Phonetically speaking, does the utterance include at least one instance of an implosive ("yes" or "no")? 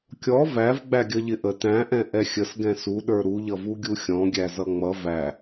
yes